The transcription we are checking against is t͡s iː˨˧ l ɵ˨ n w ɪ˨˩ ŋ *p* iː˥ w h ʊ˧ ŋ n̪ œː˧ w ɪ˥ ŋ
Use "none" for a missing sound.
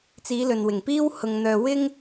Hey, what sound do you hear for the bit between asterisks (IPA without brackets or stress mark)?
p